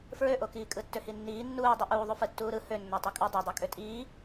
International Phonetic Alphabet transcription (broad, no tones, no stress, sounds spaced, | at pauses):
f ɹ ø ʔ o k iː kʼ ɯ tː ø h i nː iː nː uː dˤ y ʔ uː ðˤ u f ɯ tː uː ɾ ɯ h ø nː æ tˤ e kʼ u dˤ æ dˤ ø kʼ ø tʼ iː